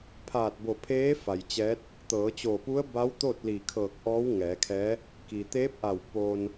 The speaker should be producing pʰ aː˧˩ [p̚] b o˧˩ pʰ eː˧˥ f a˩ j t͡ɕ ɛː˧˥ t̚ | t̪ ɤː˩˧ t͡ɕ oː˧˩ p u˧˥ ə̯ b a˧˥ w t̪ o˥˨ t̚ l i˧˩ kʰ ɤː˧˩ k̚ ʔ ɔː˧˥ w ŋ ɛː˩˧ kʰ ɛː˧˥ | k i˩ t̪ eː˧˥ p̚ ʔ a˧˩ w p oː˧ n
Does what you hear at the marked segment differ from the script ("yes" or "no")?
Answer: yes